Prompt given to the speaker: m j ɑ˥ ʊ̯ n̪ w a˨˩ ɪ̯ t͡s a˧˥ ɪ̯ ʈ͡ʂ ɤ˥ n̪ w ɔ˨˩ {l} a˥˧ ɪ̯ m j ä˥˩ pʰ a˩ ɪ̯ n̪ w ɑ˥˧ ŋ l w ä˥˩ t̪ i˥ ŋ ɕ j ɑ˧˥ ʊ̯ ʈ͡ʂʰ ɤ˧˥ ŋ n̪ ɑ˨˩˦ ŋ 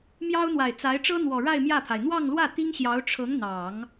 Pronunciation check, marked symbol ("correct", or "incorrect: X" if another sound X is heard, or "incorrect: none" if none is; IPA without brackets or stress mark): incorrect: ɻ